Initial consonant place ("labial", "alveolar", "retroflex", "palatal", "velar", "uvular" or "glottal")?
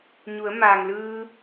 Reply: palatal